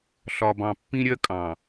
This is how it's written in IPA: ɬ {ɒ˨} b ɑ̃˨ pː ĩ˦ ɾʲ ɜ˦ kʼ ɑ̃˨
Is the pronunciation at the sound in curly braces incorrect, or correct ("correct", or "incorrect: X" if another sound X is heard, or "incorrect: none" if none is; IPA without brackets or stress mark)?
correct